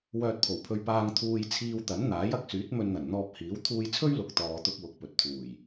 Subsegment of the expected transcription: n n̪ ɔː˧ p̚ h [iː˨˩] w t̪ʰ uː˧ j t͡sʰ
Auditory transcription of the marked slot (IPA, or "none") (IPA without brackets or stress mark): iː˨˥